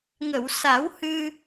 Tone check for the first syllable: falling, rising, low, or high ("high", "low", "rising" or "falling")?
low